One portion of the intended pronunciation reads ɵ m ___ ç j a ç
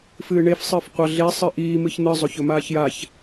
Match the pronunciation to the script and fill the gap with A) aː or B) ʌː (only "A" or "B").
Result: A